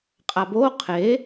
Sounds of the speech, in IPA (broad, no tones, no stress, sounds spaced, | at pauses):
qʼ a b o qʰ e